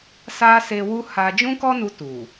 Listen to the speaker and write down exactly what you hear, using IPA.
s a˦ s e˧ w u˦ h a˧ d͡ʒ ũ˦ k ɔ˦ n u˧ t u˨

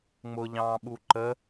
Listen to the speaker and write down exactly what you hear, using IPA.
ŋ͡m ʊ ʎ ɑ̃ː ɓ u ǃ ə

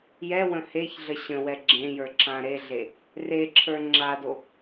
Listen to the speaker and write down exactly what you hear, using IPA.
j ɛ w ə̃ h e ç ɮ ə ɕ ə̃ w ɛ ɡ͡ǁ ẽ j ə˞ ǁ ã ɾ e ɮ e | r e ǁʰ ə˞ ŋ͡ǁ a d o

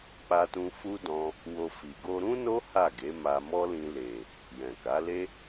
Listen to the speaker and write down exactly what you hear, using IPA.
k͡p a˧ t ũ˧ f u˦ d ɔ̃˧ | w o˧ f i˨ ɡ o˧ ɾ ũ˦ n o˦ h a˦˨ ɡ e˨˦ m a˧ m ɔ˦ l ĩ˧ l e˨ | j ɛ̃˨ k a˨˦ l e˦

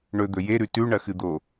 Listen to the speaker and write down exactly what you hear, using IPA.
ɳ ɵ d̪ ɵ j e ɾ ʉ t ʉ ɳ ɐ x ɨ d̪ o

